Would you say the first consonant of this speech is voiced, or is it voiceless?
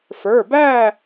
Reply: voiceless